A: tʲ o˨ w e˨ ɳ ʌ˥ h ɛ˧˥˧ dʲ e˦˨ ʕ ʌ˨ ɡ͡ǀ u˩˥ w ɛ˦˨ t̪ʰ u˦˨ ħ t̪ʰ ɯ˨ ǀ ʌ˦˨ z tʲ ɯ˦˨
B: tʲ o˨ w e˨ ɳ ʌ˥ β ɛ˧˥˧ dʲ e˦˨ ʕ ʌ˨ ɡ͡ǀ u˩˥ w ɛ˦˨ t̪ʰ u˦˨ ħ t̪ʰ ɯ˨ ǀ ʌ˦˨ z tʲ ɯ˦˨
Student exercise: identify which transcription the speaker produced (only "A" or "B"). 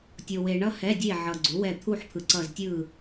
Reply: A